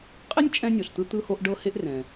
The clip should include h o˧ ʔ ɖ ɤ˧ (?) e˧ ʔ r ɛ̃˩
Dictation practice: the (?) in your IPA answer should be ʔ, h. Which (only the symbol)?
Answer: h